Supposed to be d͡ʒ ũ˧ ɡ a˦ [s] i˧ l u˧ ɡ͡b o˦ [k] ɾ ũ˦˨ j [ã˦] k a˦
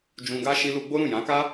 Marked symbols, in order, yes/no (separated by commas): no, no, no